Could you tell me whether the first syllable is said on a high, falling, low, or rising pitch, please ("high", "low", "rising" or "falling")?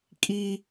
high